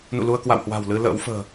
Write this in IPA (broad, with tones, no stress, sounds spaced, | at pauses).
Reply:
n ṵ˧˨ l u˧ ə̯ k w a̰˧˨ w h w a̤˨˩ w l ɨ˧ l ə̰ː˧˥ w f ə̤ː˨˩